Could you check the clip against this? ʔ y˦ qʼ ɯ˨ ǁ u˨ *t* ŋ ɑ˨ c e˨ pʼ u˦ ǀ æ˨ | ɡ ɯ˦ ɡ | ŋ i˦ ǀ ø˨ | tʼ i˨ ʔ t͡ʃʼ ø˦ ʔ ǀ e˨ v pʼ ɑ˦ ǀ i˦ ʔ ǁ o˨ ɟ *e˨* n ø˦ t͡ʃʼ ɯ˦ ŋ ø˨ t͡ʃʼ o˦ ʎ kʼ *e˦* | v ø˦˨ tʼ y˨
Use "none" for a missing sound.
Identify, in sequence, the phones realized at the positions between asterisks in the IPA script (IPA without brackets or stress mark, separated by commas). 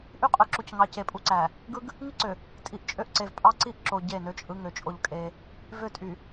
c, e˦˨, e˦